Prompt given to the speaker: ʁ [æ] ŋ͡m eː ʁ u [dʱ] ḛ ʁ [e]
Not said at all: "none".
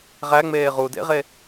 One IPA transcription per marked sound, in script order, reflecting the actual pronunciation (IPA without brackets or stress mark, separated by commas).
æ, d, e